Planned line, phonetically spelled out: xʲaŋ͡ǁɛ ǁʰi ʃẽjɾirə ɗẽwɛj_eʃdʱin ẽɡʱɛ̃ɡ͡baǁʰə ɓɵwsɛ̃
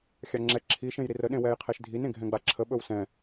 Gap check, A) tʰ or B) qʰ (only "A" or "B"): B